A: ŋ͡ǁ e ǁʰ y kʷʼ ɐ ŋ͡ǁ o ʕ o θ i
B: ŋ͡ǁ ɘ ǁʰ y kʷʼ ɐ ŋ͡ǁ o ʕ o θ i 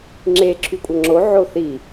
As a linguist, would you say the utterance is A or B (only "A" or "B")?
A